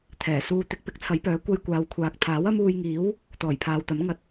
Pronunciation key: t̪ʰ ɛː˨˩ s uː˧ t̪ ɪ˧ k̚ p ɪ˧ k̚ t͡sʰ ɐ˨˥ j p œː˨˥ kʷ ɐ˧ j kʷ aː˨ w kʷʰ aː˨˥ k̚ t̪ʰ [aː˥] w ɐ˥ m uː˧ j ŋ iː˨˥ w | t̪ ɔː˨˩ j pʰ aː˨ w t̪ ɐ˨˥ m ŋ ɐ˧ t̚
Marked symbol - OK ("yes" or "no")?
no